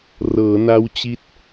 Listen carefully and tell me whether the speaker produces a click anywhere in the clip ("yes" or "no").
no